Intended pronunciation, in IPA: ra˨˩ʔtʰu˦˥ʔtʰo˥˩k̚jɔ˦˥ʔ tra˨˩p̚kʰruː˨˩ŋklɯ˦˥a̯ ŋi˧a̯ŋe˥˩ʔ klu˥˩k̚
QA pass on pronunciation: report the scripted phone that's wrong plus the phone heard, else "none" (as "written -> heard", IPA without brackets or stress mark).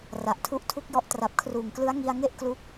o˥˩ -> u˥˩